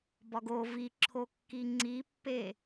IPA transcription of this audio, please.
b ɒ ɡ o v i ǁʰ o kː i ŋ͡ǀ i pː e

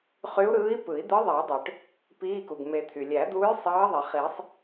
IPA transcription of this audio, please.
χ y˧˥ u̯ ɾ ɯː˧˥ i̯ p ɯ˨˩˦ i̯ d̪ ɯ˧˥ ðˤ iː˨˩˦ dˤ ø˩ ʈ | p iː˧˥˧ k u˩ ɡ m e˨˩˦ t̪ʰ y˩ lʲ æ˨˩˦ d̪ uː˧˥ j sˤ ɑː˧˥ ðˤ i˩ χ i˨˩˦ sˤ

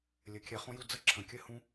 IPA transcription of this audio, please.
lʲ ɘ˧˩ kʲ ɛ˧ χ õ˥ j u˥˧ d͡z ə˥ ǁʰ ə̃˧˩ kʲ ɘ˥ h ũ˥

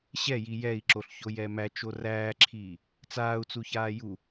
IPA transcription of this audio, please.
ɕ ɛ j i j ɛ i̯ ǁ o ɬ ç o j ɛ m æ t͡ʃ o r æː ǁʰ iː | t͡s aː u̯ t͡s u ç aː j u

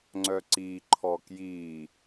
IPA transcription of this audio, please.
ŋ͡ǀ œ ǀ i ǃʰ ɔ k j i

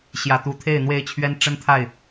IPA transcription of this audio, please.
ɕ j ä˨˩ t̪ u˨˦ t̪ʰ e˥˨ ɪ̯ n̪ w e˥˨ ɪ̯ t͡ɕʰ ɥ ɛ˦ n ʈ͡ʂ ə˦ n t̪ʰ a˥˨ ɪ̯

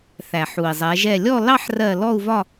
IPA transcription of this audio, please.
θ æ˩ ħ u˩ i̯ zˤ ɛ˩˧ ʒ ɛ˧˩ lʲ ɔ˥˨ l ɑ˦ ħ r ɜ˧˩ l ɔ˥˨ u̯ v ɒ˥˨

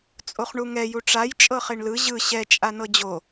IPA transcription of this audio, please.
t͡sʼ o χ ɳ u ŋ ɛ j u ʈ͡ʂ a j t͡ʃʼ ɤ χ e ɳ l ɯ ʑ ɯ ɕ ɛ t͡ʃʼ a n ɤ d͡ʑ o

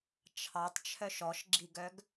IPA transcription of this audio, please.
t͡ʃʰ ɑ tˤ t͡ʃʰ œ ʃ ɔ ʃ ɡ͡ǁ i ɡ œ ɡ

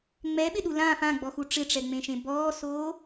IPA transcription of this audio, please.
ŋ͡m ɛ ɓ ɪ ɗ u l ã f ã ɡ͡b ɔ x u ʈ͡ʂ ɪ ʈ͡ʂ ɛ ŋ͡m ẽ ʃ ẽ b ɔː s oː

